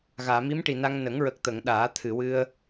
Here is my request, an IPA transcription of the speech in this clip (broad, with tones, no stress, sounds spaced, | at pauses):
ɣ aː˨˩˨ m i˧˥ m ʈ i˨˩ n a˧ ŋ n ə˨˩˦ ŋ ɹ ə˨˩ k̚ t̪ ə˨˩˨ ŋ ɗ aː˨˩˦ t̪ʰ ɨ˨˩˨ w ɨ˧ ə̯